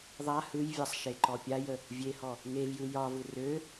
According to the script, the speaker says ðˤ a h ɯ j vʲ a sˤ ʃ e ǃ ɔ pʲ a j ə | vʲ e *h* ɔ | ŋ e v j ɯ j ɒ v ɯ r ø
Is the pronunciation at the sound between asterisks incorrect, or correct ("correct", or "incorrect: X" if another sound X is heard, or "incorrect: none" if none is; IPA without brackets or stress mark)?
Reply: correct